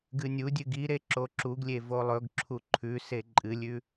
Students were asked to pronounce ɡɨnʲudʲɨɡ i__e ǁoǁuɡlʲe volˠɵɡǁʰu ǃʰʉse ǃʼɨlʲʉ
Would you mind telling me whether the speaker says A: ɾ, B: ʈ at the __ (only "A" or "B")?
A